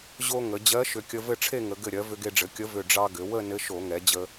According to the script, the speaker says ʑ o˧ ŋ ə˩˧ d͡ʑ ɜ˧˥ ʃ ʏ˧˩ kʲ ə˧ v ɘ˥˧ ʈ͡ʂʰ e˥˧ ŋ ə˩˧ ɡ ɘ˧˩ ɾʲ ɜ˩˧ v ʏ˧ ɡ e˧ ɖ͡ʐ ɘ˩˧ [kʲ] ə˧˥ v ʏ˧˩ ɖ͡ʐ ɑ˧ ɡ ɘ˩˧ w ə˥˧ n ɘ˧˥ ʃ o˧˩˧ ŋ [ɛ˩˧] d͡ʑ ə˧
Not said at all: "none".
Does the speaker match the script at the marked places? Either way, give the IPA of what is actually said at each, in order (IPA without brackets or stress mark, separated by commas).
kʲ, ɛ˩˧